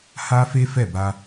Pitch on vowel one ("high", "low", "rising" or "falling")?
high